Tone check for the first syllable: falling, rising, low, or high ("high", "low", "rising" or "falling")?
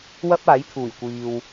high